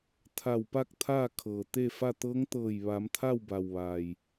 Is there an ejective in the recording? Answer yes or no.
no